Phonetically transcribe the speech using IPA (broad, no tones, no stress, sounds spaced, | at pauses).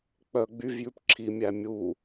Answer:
k͡p œ ɡ͡b y v j ʉ p ǁʰ i mʲ æ mʲ u